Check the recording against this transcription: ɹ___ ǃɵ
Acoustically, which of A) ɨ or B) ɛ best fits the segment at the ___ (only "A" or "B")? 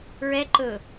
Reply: B